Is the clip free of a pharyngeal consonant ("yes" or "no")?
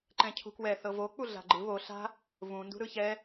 yes